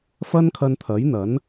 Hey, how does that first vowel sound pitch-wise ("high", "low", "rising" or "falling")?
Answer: high